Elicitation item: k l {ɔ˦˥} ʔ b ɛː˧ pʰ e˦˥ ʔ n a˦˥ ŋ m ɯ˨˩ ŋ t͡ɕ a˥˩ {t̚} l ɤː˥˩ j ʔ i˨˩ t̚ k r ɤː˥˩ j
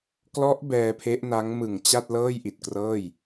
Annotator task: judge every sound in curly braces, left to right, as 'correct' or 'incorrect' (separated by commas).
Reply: correct, correct